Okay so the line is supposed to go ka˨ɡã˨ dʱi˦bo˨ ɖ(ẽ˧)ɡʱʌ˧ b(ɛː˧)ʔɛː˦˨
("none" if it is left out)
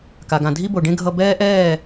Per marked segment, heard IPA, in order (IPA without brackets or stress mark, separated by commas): ẽ˦, ɛː˦